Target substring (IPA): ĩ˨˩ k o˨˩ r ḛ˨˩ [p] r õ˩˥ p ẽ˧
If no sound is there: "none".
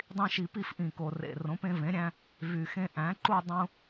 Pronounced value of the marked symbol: none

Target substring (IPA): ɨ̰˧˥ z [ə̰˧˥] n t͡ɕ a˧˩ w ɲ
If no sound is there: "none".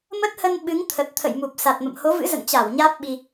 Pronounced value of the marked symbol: ə̰˧˨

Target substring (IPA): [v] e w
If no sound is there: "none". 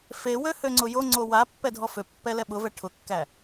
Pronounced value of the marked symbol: f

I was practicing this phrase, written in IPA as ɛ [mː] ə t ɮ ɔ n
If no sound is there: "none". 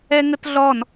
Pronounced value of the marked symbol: ŋ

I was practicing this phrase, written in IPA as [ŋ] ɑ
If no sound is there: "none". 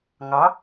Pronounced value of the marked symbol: ŋ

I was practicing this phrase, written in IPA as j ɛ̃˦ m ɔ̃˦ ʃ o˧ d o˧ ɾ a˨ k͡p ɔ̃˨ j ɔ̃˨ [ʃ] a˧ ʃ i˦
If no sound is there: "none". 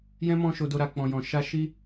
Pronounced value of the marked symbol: ʃ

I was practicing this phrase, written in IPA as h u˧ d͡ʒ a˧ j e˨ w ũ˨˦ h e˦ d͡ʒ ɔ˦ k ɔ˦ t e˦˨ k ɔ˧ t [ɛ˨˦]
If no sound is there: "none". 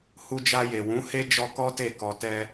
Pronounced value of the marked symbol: ɛ˦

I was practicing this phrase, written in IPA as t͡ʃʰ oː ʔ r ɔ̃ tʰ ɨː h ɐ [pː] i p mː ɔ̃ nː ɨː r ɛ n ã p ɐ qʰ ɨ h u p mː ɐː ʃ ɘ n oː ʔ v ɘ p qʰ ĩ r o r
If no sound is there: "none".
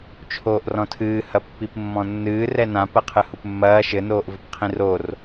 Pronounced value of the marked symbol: pː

